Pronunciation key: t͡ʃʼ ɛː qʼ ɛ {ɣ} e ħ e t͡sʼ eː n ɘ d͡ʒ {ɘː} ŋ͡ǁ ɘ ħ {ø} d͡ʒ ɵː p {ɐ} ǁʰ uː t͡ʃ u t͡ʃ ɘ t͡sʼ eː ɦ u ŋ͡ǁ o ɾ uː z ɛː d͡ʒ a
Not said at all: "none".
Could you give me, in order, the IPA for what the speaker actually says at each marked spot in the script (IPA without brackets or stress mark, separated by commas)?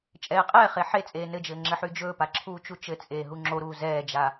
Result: χ, ɘː, y, a